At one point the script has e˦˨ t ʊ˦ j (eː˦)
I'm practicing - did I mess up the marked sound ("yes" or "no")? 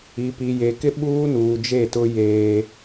no